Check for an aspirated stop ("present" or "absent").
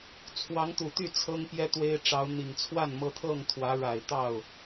present